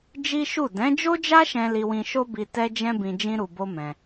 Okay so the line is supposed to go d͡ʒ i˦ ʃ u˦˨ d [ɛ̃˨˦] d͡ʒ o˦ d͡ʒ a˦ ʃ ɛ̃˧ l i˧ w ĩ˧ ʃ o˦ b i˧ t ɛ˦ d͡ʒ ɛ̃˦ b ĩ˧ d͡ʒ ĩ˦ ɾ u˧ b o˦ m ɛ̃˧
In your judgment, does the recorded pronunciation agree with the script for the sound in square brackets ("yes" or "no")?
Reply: yes